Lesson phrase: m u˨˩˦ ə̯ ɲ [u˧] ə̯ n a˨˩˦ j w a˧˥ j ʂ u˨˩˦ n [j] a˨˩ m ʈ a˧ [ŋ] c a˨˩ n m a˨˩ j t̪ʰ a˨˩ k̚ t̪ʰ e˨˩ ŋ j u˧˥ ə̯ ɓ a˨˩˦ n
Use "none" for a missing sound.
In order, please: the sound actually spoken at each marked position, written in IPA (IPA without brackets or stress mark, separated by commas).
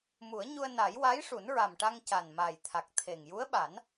u˧, ɹ, ŋ